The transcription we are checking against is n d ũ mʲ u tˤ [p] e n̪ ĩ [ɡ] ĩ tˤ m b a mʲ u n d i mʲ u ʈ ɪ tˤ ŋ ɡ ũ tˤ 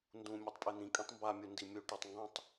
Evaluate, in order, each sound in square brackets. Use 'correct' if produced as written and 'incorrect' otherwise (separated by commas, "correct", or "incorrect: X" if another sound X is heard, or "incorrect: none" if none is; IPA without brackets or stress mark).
incorrect: pʼ, incorrect: kʼ